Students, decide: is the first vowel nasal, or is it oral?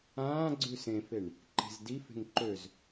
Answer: nasal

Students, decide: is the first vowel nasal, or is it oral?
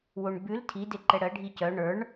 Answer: oral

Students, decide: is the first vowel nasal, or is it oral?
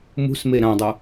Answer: oral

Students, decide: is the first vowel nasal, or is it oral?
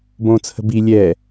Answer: nasal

